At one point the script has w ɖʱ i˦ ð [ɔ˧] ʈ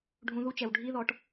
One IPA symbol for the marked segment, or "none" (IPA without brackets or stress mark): ɔ˧